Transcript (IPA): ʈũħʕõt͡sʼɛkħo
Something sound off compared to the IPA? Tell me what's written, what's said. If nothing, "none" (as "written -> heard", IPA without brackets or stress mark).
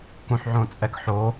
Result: ʈ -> k